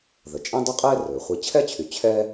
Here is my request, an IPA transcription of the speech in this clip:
ð ə˩ t͡ʃʼ ɛ̃˦ dˤ o˦ qʼ ɛː˦ r ɵː˩ χʷ i˨ t͡ɕʰ ɛ˥ t͡ɕʰ y˩ t͡ɕʰ ɛː˦

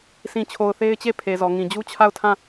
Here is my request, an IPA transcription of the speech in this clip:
s ĩ˨ t͡ɕʰ o˨ ʊ̯ θ e˦ ɪ̯ t͡ɕ e˦˨ pʰ e˨ z ɔ˨ ŋ ĩ˨ d͡ʑ u˦ t͡ɕʰ a˦˨ ʊ̯ tʰ ã˦˨

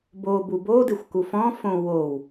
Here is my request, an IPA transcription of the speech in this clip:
b o b u b o d ɪ xʷ k u f ɔ̃ f õ w o w

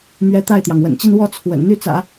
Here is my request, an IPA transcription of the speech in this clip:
m ɥ ɛ˧˥ t̪ a˥˩ ɪ̯ t̪ j ɑ˩ ŋ w ə̰˨˩ n t͡ɕ i˥˧ n w ɔ˥˩ t͡sʰ w ə̰˨˩ n n̪ y˥˩ t͡s ä̰˨˩˦

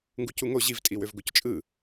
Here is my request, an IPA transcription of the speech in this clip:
ŋ ɡ u c u ŋ o ʑ i v tʼ i w ø v ɡ o c t͡ʃʼ ɯ

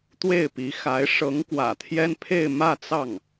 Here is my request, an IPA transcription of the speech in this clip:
t̪ w e˥˩ ɪ̯ p i˧˥ x a˧˥ ɪ̯ ʂ ɤ˧˥ ŋ k w ä̰˨˩ t̪ʰ j ɛ˥ n pʰ e˥˧ ɪ̯ m ä˥˧ t͡s ɑ˥˩ ŋ

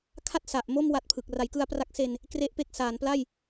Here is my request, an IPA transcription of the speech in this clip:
kʰ a˥˩ t̚ s a˨˩ ʔ m o˥˩ m w a˦˥ t̚ pʰ ɯ˨˩ k̚ r a˩˦ j k ɯ˧ a̯ p r a˦˥ k̚ s e˧ n | k r e˦˥ ʔ p e˦˥ k̚ s aː˩˦ n p l a˥˩ j

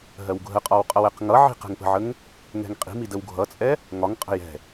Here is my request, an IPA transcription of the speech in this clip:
ɦ ɜ w ɡʱ ə qʼ ɒ w qʼ ʌ w ɛ q ŋ ʌ ʕ i̤ q ɛ̤ ŋ p ə̤ ʕ ə ŋ | ŋ ɛ̤ ŋ qʼ i̤ m i d ə w ɡʱ ʌ t͡sʼ ɛ | ŋ ɒ ŋ qʼ ə̤ j ɛ̤

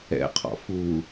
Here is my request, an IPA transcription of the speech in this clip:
ɛ̰ qʰ ɔ̰ f u

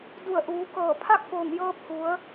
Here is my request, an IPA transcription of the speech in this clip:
d u˧˩ ə̯ ʔ uː˩˧ k ɤː˧˩ pʰ a˥˨ k̚ f oː˧˩ ŋ j ɤː˧ p̚ h u˩˧ ə̯

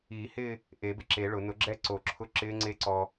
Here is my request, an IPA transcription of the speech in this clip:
iː˨˩˦ h ɪː˥˧ | ʔ e˨˩˦ b ɪ˧ ǁ e˨˩˦ ɭ ʊ˨˩˦ n ʊ˨˩˦ ɡ͡ǁ ɛ˦˥ ǀ o˨˩˦ ǁʰ ʊ˦˥ ǁ ɪː˦˥ ŋ͡ǀ e˦˥ ǀ ɔ˧

